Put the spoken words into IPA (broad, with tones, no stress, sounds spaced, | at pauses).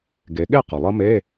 ɡ e˩˧ ɠ e˥˩ q ʌ˩ lˠ ʌ˦˥ m e˧˥˧